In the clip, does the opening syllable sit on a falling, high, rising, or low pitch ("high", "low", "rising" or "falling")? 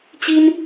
high